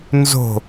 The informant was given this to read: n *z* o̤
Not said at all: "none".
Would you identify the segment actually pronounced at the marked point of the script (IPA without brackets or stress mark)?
z